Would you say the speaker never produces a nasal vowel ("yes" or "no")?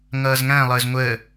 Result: no